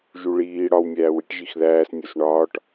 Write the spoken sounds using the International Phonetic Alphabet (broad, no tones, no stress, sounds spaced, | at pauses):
ʒ u ɭ iː ɽ ɒ w mʲ æː w i ʈ ʒ i x ð æː s nʲ o s ɳ ɒː ʈ